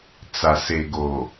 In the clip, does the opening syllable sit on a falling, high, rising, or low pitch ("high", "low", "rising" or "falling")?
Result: low